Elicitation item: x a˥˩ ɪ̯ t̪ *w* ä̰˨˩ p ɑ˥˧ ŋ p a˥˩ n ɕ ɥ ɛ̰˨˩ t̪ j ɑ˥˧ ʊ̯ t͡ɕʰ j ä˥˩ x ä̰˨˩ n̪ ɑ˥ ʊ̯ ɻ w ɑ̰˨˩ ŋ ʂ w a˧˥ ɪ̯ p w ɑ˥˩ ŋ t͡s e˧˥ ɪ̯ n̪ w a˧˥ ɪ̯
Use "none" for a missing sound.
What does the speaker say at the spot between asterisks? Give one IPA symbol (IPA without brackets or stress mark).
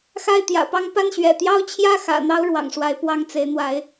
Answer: j